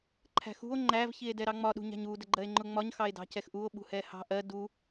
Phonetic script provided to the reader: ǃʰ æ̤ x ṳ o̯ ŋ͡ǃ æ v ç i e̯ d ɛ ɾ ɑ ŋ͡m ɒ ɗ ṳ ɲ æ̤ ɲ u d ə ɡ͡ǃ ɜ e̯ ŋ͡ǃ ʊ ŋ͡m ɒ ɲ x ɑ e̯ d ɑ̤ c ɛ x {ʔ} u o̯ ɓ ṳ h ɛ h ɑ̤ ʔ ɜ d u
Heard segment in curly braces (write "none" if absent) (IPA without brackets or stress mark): ʔ